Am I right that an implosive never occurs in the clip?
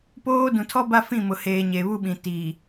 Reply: no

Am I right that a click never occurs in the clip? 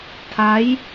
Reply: yes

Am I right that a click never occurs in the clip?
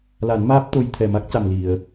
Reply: yes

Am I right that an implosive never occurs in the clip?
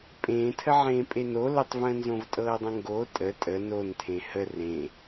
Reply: yes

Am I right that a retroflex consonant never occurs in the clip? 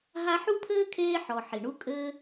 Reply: no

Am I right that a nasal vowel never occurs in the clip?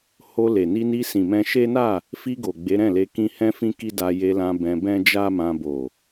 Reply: no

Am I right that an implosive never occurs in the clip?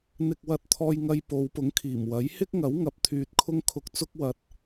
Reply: yes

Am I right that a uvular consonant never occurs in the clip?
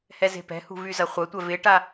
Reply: no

